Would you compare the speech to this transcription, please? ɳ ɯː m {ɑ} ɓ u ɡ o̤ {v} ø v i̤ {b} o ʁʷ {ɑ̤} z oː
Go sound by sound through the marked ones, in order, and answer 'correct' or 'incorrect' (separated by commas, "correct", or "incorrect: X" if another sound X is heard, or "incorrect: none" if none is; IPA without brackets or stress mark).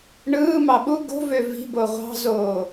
correct, correct, correct, correct